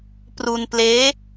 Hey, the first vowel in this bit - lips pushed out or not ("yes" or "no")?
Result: yes